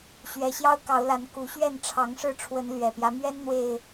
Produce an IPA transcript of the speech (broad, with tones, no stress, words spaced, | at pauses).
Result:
ɕɥɛ˨˦ ɕjɑ˦ʊ̯kɑ˨˦ʊ̯la˨˦n ku˨˦ɕɥɛ˥˨n ʈ͡ʂʰɑ˨˦ŋʂɻ̩˥˨ʈ͡ʂʰwə˨˦n lɥɛ˨˩pjä˦ mɥɛ˦nn̪we˨˩ɪ̯